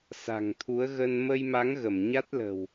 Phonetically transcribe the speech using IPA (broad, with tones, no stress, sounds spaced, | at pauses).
s a̤˨˩ ŋ t̪ʰ u˨˦ ə̯ ɣ ə˧ n m ə˧ j m a˨˦ ŋ ɣ ə˧˩ m ɲ a˦˥ t̚ l ə̤˨˩ w